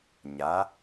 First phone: ɲ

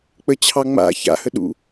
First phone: k͡p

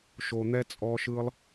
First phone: ʃ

